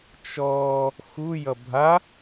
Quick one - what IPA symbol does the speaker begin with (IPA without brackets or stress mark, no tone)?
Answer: t͡ʃ